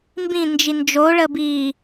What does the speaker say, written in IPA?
m b ĩ n d͡ʒ i n d͡ʒ o ɭ ə b iː

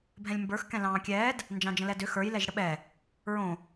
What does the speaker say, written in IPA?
bʱ ɛ̃ lʲ m b ə˞ x k ɛ̃ l ɑ̃ː kʲ ɛː d | n d͡ʒ ɑ̃ d͡ʒ ə̃ l ɛ d ʏ x ə˞ j l ɛ ʒ ɽ ə ɓ ɛ | ɹ õ

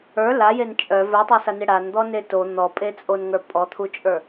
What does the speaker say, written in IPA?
ə˞ l a j e n t͡ʃʼ œ v ə˞ tˤ ə˞ s a n e ɽ a n d̪ ɔ n e t o n̪ ɔ pʼ e t͡sʼ o n ŋ ə˞ pʼ ɔ t̪ʰ u t͡ʃʼ ə˞

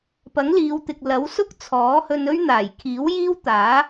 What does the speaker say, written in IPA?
p ɐ˨˥ ŋ l iː˨˧ w t̪ ɪ˨ k̚ l ɐ˨˥ w s ʊ˥ k̚ t͡sʰ ɔː˨˥ h ɵ˧ n ɵ˥ ɥ n̪ aː˨˩ j kʰ iː˨˥ w j iː˥ w t̪ aː˨˥

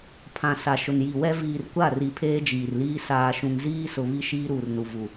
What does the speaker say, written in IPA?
pʰ ã˨ s a˨ ʃ ʊ˨ n j i˨ w ɛ˦ v iː˨ r kʷ a˦˨ r i˨ pʰ eː˦ d͡ʒ iː˨ r l iː˦ s aː˨ ʃ ũ˨ ŋ z iː˦ s ʊ˨ β i˦ ʃ iː˦ ɾ uː˨ r n u˨ v u˨

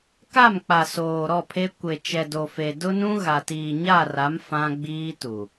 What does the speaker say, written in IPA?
k a˦˨ m k͡p a˨ s oː˨ ɾ ɔ˦˨ pʰ e˦ kʷ e˨ t͡ʃ ɛ˨ d o˨ f e˨ d ʊ˦ n ũ˦ ɣ a˨ t iː˨ ɲ a˦˨ r a˨˦ m f ã˦ ɡ͡b iː˦ t u˨

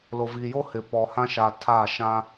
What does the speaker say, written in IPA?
l o˨ v i˨ j o˦ h ɪ˨ p ɔ˨ h ã˦ ʃ a˨ tʰ a˦˨ ʃ ã˦

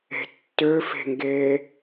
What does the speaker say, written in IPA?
e̤ tː ø f e̤ ŋ ɡ eː

